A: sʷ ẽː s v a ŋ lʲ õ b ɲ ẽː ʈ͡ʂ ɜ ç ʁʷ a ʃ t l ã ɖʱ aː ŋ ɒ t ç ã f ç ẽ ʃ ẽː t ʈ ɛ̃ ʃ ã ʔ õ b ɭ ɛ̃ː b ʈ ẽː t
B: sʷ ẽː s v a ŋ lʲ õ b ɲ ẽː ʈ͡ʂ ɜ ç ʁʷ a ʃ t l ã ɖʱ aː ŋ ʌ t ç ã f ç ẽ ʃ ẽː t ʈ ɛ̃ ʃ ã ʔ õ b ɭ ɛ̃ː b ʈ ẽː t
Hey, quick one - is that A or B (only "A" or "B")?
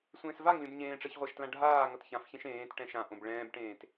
B